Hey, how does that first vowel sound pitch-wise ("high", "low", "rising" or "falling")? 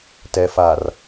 low